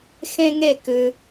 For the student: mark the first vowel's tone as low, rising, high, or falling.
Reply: high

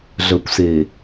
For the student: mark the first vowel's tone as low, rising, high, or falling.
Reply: low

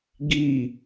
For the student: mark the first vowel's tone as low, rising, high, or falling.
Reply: falling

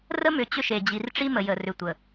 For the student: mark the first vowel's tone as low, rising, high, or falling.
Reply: high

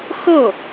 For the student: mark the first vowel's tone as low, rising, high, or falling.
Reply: falling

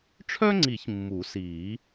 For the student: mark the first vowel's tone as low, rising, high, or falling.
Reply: high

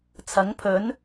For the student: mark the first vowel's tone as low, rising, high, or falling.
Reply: rising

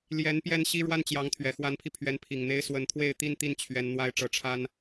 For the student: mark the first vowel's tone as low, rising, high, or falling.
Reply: rising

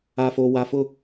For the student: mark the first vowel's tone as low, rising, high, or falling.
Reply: low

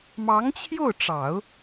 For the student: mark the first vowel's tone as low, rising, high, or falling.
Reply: rising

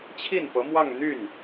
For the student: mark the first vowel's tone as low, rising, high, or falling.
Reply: falling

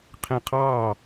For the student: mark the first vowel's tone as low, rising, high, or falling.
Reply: falling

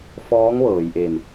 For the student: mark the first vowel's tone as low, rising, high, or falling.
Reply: rising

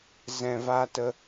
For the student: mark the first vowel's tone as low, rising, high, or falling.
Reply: low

